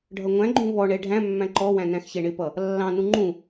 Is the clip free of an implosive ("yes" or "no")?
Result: yes